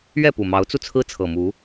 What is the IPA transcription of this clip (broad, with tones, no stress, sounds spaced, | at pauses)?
ɥ ɛ˥˨ p u˨˩ m ɑ˨˦ ʊ̯ t͡s u˧ t͡sʰ ɹ̩˦ t͡sʰ ɤ˨˩ m u˨˦